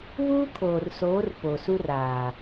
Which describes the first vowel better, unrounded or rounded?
rounded